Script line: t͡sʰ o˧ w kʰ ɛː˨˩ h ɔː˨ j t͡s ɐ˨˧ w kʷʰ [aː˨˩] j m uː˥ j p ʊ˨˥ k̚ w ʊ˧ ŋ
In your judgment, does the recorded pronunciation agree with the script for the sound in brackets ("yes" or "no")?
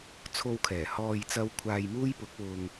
no